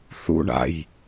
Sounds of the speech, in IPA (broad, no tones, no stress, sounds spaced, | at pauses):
θ ṵ ɳ a̰ j